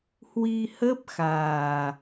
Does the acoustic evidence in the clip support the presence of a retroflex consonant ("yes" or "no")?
no